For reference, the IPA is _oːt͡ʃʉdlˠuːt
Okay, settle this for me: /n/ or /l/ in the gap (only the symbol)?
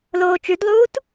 l